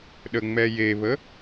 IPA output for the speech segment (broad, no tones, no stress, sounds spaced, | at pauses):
ɗ ə ŋ͡m ɛ j e β ə